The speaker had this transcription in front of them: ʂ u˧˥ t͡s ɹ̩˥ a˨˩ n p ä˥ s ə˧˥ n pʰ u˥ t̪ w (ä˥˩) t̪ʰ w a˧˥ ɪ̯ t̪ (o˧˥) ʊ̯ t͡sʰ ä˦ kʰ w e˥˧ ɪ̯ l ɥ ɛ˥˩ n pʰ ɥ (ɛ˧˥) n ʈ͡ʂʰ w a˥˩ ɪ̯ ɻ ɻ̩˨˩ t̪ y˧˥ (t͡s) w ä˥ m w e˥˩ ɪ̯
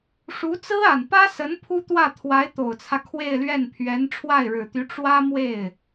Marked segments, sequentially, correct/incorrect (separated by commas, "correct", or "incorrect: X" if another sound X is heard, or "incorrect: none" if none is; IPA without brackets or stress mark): correct, incorrect: o˨˩, correct, incorrect: ʈ͡ʂ